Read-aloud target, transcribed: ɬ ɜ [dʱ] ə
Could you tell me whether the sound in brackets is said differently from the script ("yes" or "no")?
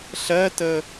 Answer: yes